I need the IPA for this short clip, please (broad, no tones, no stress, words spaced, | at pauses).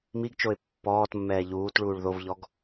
miɡt͡ʃoɪ̯ pːɔːtmːɛː ʎuːtɭuːɭ ðovʎɔɡ